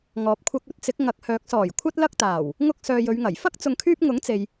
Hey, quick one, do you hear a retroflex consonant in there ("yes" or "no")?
no